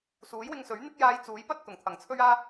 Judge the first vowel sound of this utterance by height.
high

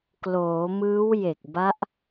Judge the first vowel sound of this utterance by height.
mid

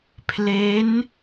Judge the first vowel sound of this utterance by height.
mid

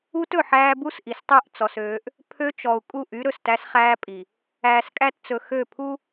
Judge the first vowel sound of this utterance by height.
high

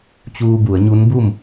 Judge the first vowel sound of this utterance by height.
high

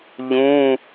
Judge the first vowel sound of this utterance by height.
high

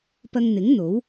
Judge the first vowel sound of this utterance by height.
low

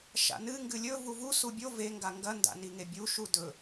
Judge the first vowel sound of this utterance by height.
low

